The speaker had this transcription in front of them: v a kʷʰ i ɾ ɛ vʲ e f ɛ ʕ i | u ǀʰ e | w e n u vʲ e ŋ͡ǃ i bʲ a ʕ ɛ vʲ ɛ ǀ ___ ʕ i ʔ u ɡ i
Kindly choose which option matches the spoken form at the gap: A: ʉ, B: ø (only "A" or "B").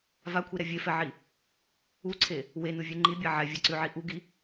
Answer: A